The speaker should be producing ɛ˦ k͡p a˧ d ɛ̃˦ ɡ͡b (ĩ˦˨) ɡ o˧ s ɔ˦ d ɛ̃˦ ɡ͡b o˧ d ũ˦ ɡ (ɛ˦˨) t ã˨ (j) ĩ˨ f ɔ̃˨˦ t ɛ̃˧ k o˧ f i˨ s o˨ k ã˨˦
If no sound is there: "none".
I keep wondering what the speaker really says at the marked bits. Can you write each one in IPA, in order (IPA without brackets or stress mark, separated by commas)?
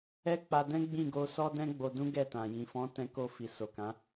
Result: ĩ˦˨, ɛ˦˨, j